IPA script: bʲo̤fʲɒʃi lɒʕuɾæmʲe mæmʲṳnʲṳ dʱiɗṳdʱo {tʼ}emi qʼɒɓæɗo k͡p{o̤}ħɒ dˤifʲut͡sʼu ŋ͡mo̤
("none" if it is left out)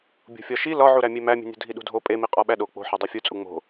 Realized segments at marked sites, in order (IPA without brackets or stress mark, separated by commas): pʼ, o̤